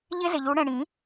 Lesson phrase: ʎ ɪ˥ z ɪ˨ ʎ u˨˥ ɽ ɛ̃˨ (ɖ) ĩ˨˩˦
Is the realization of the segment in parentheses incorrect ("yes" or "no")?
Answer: yes